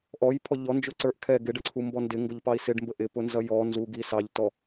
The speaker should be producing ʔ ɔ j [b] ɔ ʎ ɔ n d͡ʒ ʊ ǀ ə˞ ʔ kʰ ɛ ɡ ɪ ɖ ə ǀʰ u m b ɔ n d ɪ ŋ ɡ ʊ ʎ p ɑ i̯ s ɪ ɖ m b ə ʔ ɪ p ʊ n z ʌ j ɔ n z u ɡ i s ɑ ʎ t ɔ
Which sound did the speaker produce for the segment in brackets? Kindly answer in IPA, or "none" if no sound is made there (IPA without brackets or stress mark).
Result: pʰ